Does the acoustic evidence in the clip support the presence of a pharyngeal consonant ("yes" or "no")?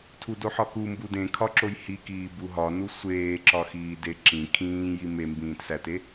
yes